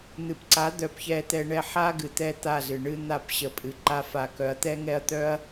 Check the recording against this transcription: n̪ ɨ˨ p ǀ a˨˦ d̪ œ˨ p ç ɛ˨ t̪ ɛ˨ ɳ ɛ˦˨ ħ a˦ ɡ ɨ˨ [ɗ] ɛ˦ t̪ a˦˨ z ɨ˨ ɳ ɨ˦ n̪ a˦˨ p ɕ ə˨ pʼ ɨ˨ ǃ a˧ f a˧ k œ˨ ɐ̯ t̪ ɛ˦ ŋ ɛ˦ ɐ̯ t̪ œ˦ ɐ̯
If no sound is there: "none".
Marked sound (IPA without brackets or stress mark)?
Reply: t̪